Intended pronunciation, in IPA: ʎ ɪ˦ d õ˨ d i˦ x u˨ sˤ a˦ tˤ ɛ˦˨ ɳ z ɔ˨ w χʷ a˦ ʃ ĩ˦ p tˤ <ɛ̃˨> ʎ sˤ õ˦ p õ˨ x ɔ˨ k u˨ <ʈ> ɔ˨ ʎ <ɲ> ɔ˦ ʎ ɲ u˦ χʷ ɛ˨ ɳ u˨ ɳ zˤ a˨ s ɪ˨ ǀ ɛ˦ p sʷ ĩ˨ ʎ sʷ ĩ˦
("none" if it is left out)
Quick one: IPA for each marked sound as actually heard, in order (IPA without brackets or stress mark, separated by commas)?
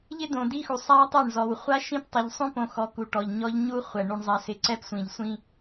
ɛ˨, ʈ, ɲ